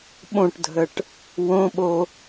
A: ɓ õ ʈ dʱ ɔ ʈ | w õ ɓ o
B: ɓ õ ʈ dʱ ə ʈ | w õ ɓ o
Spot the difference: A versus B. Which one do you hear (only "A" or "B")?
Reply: B